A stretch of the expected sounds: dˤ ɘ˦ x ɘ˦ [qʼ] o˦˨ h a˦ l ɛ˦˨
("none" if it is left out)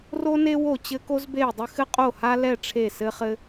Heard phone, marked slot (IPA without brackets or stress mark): qʼ